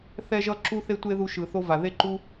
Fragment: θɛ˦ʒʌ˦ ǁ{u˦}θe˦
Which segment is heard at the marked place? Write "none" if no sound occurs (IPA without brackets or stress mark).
u˦